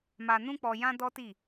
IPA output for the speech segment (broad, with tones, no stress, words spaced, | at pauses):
ma˧nũ˦k͡pɔ˧ jã˦dɔ˦ti˦˨